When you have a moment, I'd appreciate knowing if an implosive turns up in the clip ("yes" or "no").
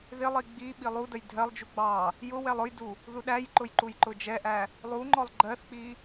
yes